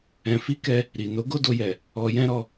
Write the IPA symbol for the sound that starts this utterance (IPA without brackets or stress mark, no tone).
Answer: ɛ̃